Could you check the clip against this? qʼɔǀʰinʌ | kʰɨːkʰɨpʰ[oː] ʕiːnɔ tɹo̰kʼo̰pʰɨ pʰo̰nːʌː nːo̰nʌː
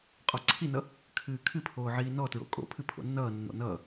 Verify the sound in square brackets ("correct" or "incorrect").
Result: correct